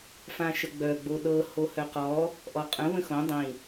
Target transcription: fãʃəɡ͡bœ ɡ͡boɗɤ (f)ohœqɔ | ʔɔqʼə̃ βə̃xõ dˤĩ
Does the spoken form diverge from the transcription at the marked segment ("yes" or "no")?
yes